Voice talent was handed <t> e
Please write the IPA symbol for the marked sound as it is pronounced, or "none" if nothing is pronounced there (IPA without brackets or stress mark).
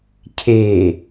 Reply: cʰ